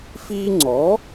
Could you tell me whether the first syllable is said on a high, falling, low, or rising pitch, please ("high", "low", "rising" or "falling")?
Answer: high